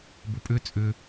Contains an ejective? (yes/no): yes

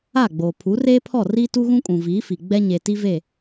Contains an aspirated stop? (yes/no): yes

